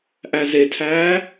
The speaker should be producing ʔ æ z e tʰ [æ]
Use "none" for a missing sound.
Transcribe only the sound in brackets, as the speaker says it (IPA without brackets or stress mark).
æː